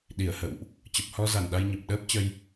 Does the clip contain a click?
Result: no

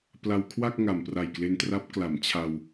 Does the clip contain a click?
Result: no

